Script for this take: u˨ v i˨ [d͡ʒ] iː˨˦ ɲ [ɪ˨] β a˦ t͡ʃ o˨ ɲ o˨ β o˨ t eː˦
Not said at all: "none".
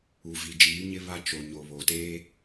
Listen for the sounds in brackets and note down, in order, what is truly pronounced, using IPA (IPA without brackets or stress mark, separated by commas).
d͡ʒ, ɪ˦